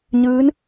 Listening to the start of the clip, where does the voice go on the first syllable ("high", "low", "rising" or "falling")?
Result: rising